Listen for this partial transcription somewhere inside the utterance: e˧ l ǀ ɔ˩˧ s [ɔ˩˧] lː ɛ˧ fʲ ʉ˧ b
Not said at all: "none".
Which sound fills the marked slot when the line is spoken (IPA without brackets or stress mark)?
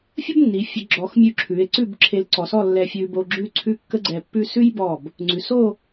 ɔ˥˧